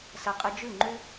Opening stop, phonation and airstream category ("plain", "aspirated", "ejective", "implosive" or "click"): ejective